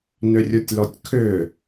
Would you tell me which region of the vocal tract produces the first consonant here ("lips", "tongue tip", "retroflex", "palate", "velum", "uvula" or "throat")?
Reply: tongue tip